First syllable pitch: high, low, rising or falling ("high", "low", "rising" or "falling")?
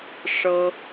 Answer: high